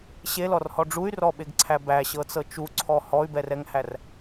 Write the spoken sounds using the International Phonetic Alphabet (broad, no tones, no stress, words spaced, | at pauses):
ɕelɔrhɔ ɖ͡ʐuy̯rɔɓeɡǀʰæ bæɕɤt͡sɤ t͡ʃuǀʰɔ hɔy̯bɛrɛŋhær